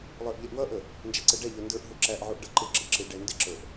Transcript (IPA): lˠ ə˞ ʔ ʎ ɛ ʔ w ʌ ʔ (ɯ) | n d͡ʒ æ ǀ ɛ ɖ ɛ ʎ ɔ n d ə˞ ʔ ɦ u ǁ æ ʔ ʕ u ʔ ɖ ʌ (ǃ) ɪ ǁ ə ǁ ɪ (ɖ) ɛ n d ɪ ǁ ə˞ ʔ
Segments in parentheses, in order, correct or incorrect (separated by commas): incorrect, correct, correct